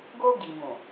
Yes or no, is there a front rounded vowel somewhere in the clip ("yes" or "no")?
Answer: no